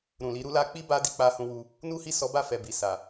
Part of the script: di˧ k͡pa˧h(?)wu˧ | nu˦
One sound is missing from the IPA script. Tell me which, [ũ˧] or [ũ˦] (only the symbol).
ũ˧